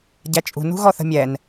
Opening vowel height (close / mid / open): open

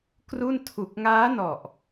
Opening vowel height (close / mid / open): close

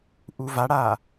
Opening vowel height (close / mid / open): close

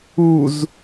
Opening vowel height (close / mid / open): close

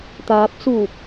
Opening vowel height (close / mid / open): open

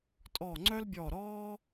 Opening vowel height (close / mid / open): mid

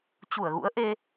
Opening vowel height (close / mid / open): close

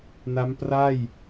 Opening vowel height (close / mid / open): open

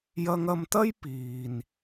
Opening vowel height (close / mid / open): open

